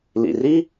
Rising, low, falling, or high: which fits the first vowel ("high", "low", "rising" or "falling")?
low